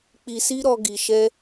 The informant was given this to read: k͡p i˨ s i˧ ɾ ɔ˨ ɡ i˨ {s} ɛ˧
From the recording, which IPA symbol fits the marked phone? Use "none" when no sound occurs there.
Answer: ʃ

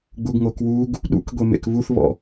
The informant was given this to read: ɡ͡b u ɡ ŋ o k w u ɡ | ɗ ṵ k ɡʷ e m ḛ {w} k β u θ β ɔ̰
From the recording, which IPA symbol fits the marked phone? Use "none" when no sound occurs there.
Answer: none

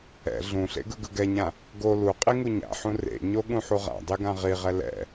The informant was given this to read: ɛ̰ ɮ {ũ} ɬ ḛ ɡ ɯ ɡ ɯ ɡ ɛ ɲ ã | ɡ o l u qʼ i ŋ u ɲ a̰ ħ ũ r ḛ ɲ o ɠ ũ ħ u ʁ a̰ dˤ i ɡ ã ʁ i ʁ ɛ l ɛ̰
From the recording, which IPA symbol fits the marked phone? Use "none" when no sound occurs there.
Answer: ũ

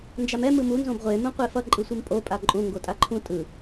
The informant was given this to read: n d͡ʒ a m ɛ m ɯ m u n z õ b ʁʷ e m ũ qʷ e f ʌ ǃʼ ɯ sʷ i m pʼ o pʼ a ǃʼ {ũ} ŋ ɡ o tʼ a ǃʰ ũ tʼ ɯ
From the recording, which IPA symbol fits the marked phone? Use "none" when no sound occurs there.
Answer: ũ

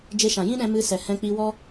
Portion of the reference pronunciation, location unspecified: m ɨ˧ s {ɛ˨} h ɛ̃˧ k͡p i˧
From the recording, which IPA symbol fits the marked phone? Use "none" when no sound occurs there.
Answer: ɛ˨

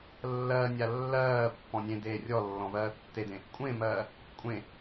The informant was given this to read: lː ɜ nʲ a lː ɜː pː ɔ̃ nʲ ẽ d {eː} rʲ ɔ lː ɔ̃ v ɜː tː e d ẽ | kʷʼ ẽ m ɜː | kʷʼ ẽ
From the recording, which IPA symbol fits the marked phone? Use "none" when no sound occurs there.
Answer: eː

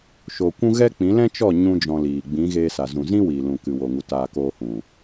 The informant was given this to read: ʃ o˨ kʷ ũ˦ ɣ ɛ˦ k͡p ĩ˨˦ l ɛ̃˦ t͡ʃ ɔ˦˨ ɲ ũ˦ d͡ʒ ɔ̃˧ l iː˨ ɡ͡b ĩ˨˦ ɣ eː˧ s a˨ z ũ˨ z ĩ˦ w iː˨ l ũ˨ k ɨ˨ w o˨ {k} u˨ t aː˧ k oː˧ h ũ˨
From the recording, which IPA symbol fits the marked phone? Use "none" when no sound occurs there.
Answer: ŋ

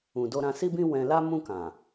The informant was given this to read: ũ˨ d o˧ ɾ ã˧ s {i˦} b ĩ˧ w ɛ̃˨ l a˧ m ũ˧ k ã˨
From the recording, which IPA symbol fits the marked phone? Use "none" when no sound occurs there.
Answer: i˦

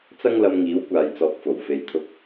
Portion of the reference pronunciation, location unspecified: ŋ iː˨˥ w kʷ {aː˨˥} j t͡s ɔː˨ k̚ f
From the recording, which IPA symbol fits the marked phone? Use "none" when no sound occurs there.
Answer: aː˨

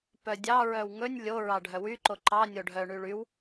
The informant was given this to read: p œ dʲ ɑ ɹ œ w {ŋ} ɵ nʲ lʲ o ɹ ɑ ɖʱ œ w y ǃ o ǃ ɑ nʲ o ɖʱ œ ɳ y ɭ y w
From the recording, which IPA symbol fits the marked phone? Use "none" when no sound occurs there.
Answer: ŋ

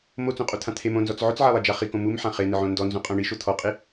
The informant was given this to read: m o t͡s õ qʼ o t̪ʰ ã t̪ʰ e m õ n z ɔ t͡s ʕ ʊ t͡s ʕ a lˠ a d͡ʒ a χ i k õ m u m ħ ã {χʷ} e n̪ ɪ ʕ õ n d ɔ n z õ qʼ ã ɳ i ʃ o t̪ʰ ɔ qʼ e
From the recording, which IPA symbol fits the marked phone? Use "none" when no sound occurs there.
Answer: χ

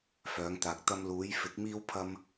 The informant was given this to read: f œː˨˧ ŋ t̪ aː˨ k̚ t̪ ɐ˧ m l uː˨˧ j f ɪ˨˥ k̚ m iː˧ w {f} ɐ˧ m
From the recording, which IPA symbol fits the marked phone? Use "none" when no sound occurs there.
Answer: pʰ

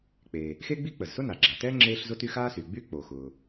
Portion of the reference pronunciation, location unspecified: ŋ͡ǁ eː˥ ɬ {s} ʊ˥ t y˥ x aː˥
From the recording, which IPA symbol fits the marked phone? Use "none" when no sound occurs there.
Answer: z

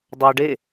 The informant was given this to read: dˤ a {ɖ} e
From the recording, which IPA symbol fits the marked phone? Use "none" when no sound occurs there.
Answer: ɖ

